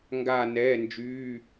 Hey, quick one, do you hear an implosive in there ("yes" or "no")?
no